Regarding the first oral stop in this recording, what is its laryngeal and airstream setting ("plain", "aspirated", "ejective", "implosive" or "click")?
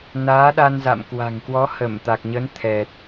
implosive